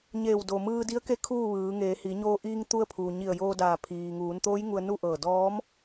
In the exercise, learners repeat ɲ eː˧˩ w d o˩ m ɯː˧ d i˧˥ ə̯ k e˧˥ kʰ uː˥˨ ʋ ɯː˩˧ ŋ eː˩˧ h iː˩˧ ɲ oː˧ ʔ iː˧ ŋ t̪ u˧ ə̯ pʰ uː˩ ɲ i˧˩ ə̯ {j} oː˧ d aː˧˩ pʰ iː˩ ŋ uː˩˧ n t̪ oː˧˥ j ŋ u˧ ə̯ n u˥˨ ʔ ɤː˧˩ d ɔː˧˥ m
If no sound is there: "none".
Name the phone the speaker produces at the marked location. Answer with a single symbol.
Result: j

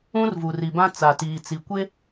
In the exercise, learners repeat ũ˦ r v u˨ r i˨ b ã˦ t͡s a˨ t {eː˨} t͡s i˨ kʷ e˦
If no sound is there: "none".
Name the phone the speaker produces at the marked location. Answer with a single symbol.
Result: iː˨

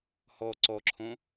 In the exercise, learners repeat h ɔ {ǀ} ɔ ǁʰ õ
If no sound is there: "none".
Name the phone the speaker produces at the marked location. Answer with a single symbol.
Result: ǀ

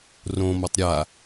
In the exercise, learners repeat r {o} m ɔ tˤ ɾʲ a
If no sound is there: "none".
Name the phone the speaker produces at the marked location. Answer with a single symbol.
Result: õ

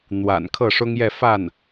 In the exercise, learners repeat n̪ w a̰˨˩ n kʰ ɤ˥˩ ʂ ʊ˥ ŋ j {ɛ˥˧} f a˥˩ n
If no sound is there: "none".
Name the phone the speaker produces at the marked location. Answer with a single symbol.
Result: ɛ˥˧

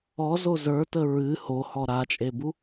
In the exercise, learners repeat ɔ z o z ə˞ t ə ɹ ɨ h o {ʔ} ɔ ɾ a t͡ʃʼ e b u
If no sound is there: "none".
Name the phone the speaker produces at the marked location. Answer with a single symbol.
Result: h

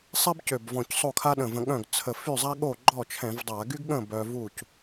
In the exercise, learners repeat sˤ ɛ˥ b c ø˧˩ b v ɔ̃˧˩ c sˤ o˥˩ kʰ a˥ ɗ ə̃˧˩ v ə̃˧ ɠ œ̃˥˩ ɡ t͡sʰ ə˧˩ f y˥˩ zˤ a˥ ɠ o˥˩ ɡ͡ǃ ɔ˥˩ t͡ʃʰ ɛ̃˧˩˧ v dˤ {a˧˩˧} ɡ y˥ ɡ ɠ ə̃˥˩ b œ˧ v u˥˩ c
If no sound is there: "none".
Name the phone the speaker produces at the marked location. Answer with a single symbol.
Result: a˧˩˧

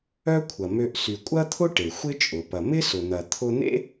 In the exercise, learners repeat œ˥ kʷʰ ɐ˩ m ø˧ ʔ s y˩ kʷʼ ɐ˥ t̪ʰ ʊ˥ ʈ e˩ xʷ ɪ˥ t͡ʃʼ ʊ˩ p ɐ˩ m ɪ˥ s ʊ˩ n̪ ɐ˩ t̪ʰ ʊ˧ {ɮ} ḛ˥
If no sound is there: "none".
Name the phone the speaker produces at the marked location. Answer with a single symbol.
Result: n̪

